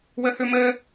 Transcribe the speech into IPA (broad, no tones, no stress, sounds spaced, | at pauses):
w ɘ h ʉ m ɘ